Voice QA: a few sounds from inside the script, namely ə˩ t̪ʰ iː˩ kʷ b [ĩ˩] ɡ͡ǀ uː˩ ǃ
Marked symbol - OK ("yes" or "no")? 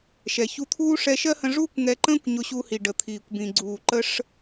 yes